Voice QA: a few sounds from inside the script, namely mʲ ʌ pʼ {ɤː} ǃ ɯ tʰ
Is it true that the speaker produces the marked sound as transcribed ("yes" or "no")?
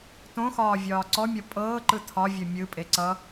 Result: yes